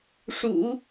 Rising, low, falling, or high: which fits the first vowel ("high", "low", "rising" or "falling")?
low